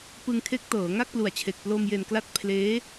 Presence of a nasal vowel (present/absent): absent